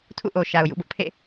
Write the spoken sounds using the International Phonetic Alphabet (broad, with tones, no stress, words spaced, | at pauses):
tʰṵ˦˨ʔo˨ʃa˨ʊ̯ jṵ˦˨bʊ˦ʔpʰḛ˦˨